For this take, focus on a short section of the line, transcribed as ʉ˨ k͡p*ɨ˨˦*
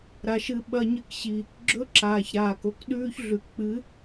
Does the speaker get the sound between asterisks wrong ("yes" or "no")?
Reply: no